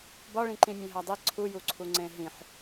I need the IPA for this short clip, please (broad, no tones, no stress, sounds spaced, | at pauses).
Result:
b ɒ ɭ ĩ ǃ ĩ mʲ ẽ ɦ æ dˤ i ǀʰ u j u ǀʰ u ŋ͡ǀ ẽ ɦ ĩ ħ